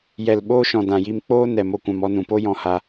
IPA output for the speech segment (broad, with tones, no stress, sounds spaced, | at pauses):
j ɛ˨ l ɓ oː˧ ʃ ɔ̃˨ d ã˨ j i˧ m k͡p oː˦ n ɛ˨ m o˧ kʷ ã˧ m ɔ˧ n ũ˨ p o˦ j ɔ̃˧ h a˦